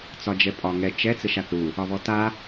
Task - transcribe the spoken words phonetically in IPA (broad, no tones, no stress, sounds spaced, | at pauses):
t͡s ɒ d͡ʒ ɛ pʼ ɒ ŋ ɛ t͡ʃ ɛ t͡s ɘ ʃ a θ ɾ u | ɒ β ɔ t a